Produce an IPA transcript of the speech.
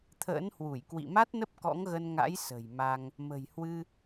t̪ʰ ə̰ː˧˥ n h w u˧˩ j k w ḭ˧˨ m a˦˥ t̚ n ə˦˥ p̚ k ɔ̰˧˥ ŋ ɣ ə˧ n ŋ a̰˧˥ j s ə̤˨˩ j m a˧ ŋ | m ə̤˨˩ j h w ɨ˧

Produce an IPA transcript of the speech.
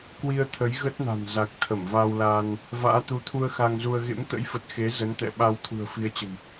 k w i˧ ə̯ t̪ʰ ə˨˦ j ɣ ə˦˥ t̚ n a̤˨˩ n z a˨˩ k̚ t̪ʰ ə˧˩ m v a˧ w l aː˧ n | v a̰ː˧˥ t̪ u˨˦ t̪ʰ u˧ ə̯ x a˧ ŋ z u˧ ə̯ ɣ ḛ˧˥ m t̪ ə̰˧˥ j f ə˨˩ t̚ x e˨˦ z ə˨˦ n t̪ ɛ̰˧˨ ɓ a˧ w t̪ʰ ṳ˨˩ ə̯ f i˨˦ ə̯ t͡ɕ ə̤˨˩ m

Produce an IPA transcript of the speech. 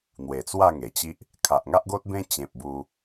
n̪ w e˨˩ t͡s w a˥˧ ŋ e˨˩ t͡ɕ i˦ ʔ | kʰ a˨ ʔ ŋ a˦ ʔ ɡ o˦ t̚ b ẽ˦ t͡ɕ ẽ˨ p̚ b u˧

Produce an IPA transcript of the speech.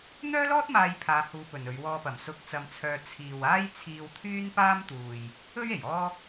n̪ œː˥ l ɔː˥ t̚ m aː˧ j pʰ aː˧ h uː˧ p ɵ˨ n ɵ˨˧ ɥ w ɔː˧ p ɐ˨˩ m s ʊ˧ k̚ t͡s ɐ˧ m t͡sʰ œː˧ t͡sʰ iː˨ w aː˥ j t͡sʰ iː˧ w t̪ʰ yː˥ n p aː˥ m t̪ uː˨ j | ɵ˥ ɥ e˨˩ j ɔː˥

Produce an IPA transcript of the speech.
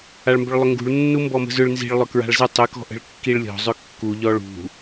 a ɭ m b ʏ ɭ lˠ ʏ ŋ ɡ ṳ ɭ nː u m b ɔ m ə̤ z ʏ ɭ n z i̤ ɭ lˠ ʏ k ɹ a̤ ɭ z ə tˤ ʏ k ɔ̤ ʔ ə̤ ɭ kː i ɭ lʲ ɔ̤ zˤ ʏ kː u ʎ ɔ ɭ ṳ

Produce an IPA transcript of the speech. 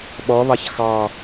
ɓ ɔ β ɑ ç x ɑ

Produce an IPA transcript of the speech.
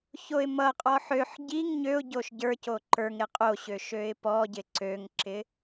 ç o ɪ̯ m ʌ qʼ ɔ ħ ø ħ ɟ i ŋ ɲ ø ʊ̯ ɟ o ʃ ɟ ə˞ c o ǃ ə˞ ŋ ɾ ɪ qʼ o ɕ ø ʃ ø ɪ̯ p ɔ ɟ ɪ ǀ ø ŋ ǁ ɪ

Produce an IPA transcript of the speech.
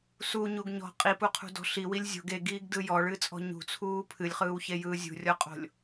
s u ɲ u ɡ ɲ ɔ̤ qʼ i p u qʰ ṳ d ɔ̤ ɬ i w i lʲ zʲ o̤ ɡ e ɡ iː ɡ d ɯ j ɔ ɭ ɨ t͡sʼ ɔ̤ ɲ ṳ t͡sʰ uː pʰ ɨ lʲ χ ɯː w ç e j ɯː zʲ ṳ rʲ ɔ qʼ o̤ lʲ

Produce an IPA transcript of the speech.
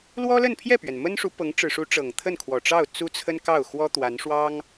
l w ɔ˥ l ə˥˧ n pʰ j ɛ˥˩ p ɥ ɛ˩ n m ə˥ n ʂ u˧˥ p ɤ˧˥ ŋ ʈ͡ʂ ɻ̩˨˩ ʂ u˧˥ ʈ͡ʂ ɤ˨˩ ŋ t̪ʰ ə˥˩ n kʰ w ɔ˨˩ ʈ͡ʂ ɑ˥˩ ʊ̯ t͡s u˥ t͡sʰ ə˥ n k ɑ˥˩ ʊ̯ x w ɔ˥ t̪ w a˧˥ n ʂ w ɑ˥ ŋ

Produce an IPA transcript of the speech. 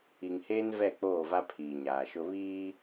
i˨ ŋ h eː˦ n v ɛ˦˨ k͡p oː˦˨ v a˦ pʰ iː˨ ɲ aː˨ ʃ ʊ˦ β iː˦

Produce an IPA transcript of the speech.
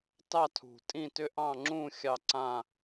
t ɑ˥˧ tʰ ṳ˨˩ tʼ ĩ˥˧ t ʏ˥˧ ʔ ɑ̃˥˧ ŋ͡ǁ ũ˥˧ xʲ ɑ˥˧ ǀ ã˥˧

